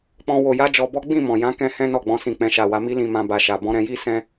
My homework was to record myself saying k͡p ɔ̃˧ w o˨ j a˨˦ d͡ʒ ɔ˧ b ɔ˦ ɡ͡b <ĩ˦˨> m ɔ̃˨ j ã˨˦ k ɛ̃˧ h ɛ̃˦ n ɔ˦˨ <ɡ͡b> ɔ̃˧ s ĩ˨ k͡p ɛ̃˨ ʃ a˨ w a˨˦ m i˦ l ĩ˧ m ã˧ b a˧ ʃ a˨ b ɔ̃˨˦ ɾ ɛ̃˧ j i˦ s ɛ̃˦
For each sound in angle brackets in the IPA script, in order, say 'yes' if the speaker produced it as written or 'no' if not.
yes, yes

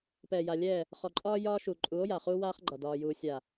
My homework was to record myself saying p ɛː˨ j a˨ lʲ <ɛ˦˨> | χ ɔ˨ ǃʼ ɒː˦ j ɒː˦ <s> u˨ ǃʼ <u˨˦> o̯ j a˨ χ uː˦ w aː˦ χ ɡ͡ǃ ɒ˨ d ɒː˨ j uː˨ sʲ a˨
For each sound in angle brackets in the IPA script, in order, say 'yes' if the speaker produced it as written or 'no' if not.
no, no, yes

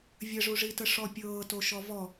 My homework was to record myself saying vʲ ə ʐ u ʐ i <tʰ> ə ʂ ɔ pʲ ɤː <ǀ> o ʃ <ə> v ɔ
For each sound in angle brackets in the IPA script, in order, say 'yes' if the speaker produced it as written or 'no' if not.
no, no, no

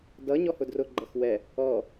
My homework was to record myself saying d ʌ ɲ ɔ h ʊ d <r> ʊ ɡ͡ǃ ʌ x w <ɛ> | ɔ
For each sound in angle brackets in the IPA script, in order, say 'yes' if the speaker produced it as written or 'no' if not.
yes, yes

